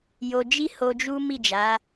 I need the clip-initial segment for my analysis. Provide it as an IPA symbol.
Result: j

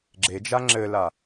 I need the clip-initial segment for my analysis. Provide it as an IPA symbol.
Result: ɡ͡ǁ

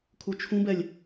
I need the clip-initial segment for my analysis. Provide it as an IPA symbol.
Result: kʰ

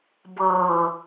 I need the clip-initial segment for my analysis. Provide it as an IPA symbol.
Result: b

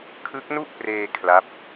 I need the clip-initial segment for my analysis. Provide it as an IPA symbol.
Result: kʰ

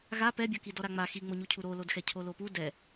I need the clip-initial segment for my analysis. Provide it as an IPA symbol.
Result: ɣ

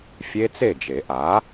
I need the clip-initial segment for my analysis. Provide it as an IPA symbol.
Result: fʲ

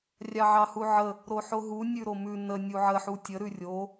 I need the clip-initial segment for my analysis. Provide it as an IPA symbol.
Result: rʲ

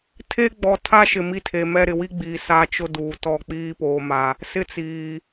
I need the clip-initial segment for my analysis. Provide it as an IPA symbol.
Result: tʰ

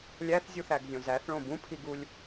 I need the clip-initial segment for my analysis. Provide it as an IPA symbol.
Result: lʲ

